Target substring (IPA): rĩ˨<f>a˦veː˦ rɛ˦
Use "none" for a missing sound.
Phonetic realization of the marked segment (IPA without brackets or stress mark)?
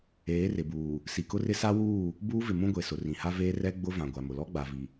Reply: h